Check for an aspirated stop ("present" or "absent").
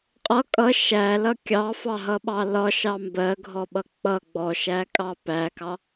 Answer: absent